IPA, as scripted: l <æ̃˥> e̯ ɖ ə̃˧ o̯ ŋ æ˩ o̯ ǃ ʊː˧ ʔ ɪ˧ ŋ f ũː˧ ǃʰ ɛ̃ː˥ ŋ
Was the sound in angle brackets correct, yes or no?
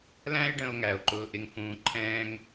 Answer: yes